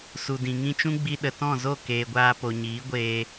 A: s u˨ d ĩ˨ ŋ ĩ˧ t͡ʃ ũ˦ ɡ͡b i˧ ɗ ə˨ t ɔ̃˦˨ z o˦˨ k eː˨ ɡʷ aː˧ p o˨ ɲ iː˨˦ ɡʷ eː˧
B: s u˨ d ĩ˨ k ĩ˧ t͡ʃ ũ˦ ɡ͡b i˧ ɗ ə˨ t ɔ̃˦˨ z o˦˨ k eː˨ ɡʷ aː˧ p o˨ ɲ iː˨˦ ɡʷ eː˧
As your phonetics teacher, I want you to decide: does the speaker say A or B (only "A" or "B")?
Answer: A